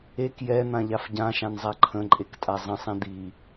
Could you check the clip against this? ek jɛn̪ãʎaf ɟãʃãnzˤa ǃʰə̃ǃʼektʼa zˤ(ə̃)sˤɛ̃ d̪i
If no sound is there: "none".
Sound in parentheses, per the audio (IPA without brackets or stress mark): ə̃